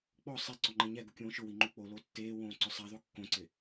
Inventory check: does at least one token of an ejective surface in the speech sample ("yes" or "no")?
no